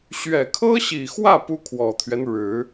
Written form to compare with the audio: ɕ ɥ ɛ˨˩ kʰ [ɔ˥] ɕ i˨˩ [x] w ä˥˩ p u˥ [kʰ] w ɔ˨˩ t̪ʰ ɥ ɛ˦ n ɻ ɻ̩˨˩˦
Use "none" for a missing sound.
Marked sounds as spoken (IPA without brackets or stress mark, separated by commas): ɤ˥, x, kʰ